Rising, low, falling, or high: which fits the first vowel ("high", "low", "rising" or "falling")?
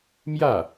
falling